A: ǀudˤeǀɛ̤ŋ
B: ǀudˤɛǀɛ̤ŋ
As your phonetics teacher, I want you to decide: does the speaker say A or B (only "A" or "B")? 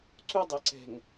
B